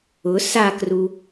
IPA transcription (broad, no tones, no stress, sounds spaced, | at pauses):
ʊ s a k r u